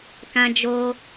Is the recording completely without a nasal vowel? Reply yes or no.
no